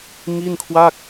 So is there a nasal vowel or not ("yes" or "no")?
no